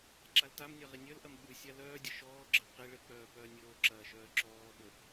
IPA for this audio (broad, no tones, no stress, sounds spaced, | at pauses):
ǁ a l t a m nʲ ɐ ʁ i nʲ œ l ʔ ɐ m ɓ ʉ sʲ a l œː dʲ ə ʃ ɔː ɡ͡ǁ ə q i ɭ ɘ k͡p œː p œː nʲ oː ǁ ɐː ʃ œː ǁ ɔː ɓ ə